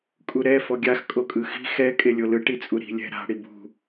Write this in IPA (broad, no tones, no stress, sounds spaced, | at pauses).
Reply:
kʼ u ɾ ɛ f ɔ ɡʲ a x kʼ o kʼ ɯ x i̤ x ɛ kʼ e lʲ o l ɯ ʈ i t͡sʼ u ɾ i̤ lʲ ɛ̤ ɾ a̤ ɽ i b ṳ